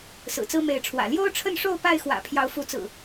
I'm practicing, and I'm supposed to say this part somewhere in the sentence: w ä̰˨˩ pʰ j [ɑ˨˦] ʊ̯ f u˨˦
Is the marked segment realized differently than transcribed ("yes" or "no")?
no